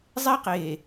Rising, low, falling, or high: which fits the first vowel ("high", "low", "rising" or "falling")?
high